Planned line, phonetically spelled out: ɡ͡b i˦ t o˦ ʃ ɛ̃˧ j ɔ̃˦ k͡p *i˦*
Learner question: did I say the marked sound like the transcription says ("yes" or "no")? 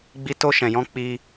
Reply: yes